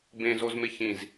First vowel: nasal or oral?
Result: nasal